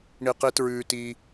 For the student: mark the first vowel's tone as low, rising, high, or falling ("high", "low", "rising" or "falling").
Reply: high